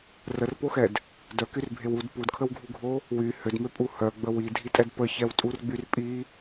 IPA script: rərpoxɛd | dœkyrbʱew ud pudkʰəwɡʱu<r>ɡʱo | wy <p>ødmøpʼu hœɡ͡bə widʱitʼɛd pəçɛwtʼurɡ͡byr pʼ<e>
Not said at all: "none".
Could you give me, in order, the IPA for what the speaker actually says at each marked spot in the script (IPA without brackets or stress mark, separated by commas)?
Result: none, h, i